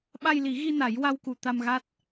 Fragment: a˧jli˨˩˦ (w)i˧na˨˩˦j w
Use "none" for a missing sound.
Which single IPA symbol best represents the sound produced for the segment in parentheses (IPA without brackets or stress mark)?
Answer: ɣ